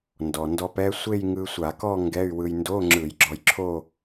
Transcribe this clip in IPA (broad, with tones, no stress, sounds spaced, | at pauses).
n d ɔ˩ n d ɔ˧ p ɛ˦˥ sʷ e˥˧ j ŋ ɯ˧ sʷ a˧˩˧ k ɔ˥˧ ŋ ɡ ɛ˧˥˧ y̯ w ɯ˧ j n d o˧˥˧ ŋ͡ǁ ɯ˧˩˧ j ɡ͡ǁ ɔ˧ j ǁʰ o˥˧